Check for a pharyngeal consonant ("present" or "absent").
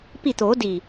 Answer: absent